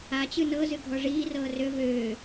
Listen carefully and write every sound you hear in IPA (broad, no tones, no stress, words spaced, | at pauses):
at͡ɕɨ nɤzɨɡʱɔ ʐiːrɤː rø vøː